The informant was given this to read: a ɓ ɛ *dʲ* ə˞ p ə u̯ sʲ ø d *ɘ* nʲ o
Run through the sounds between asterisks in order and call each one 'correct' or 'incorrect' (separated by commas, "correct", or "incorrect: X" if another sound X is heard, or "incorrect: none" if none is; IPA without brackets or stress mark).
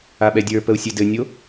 correct, correct